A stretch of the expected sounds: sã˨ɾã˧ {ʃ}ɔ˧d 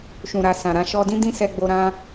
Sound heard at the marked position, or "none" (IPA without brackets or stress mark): ʃ